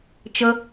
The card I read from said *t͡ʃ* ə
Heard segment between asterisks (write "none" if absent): t͡ʃ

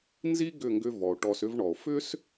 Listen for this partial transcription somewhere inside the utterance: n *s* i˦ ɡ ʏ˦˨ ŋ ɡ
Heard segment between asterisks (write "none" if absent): z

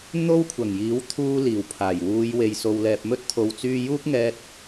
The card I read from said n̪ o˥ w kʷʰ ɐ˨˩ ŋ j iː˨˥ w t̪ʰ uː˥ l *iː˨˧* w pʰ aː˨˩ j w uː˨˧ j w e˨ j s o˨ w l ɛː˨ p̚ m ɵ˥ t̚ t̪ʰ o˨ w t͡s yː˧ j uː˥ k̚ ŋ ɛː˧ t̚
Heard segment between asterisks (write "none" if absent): iː˨˩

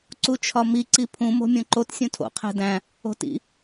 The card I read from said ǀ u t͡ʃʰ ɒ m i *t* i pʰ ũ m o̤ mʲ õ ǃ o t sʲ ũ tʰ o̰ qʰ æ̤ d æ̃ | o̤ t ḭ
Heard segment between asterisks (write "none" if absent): ǀ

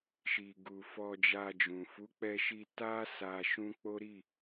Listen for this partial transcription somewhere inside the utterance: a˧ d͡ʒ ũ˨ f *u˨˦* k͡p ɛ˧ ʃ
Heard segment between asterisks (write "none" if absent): u˨˦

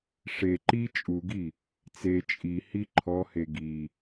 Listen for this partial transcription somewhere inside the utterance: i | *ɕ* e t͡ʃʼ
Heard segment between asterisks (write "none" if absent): t͡s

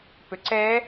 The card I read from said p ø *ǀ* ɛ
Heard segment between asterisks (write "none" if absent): ǀ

